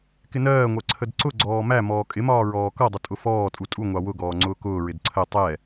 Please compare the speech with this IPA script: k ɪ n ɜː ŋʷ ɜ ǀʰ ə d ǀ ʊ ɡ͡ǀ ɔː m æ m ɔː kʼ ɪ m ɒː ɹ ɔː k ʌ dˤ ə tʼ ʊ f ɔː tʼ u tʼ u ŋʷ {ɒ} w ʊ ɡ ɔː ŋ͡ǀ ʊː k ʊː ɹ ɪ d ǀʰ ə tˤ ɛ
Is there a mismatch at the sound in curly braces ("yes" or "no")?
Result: yes